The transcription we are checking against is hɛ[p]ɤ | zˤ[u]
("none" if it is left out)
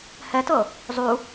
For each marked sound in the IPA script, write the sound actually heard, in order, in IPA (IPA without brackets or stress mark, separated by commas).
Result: t, u